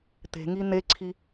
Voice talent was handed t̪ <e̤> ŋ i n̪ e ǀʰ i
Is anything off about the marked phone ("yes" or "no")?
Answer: no